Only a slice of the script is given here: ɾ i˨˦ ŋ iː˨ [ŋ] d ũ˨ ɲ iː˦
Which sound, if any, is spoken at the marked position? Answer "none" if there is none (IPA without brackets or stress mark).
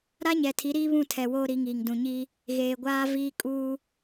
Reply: ŋ